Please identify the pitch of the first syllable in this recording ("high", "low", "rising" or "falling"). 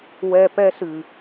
high